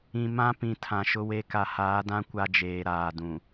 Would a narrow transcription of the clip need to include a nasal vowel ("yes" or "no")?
yes